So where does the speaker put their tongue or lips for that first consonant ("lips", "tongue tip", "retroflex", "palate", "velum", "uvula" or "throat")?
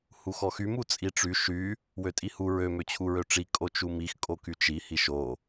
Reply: throat